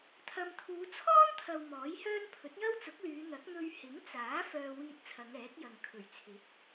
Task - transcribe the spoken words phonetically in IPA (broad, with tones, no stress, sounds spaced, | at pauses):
t̪ʰ ɐ˨ m t̪ʰ uː˨˧ t͡sʰ ɔː˥ n t̪ʰ ɐ˨ w m ɔː˨˥ j h œː˥ n pʰ ɵ˨˥ t̚ j ɐ˥ w t͡s ʊ˨˥ k̚ l yː˨˧ n̪ ɐ˨˥ k̚ n̪ ɵ˧ ɥ h ɪ˨˥ ŋ t͡s aː˨˥ f œː˧ w iː˧ t̚ t͡sʰ ɐ˨˧ ŋ ɛː˨˥ k̚ j ɐ˨ ŋ kʰ ɵ˨˩ ɥ t͡sʰ ɪ˨˥ k̚